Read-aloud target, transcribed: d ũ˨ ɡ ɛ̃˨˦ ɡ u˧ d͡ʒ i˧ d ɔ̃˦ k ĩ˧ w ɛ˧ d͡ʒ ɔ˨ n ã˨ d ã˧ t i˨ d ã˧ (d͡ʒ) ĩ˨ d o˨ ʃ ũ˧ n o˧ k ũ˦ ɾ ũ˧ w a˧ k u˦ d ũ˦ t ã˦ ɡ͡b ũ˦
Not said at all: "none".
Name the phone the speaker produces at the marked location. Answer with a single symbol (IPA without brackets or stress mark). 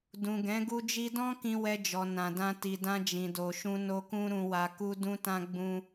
d͡ʒ